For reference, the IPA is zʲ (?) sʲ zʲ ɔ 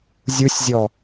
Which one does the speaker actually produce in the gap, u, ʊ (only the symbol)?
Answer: u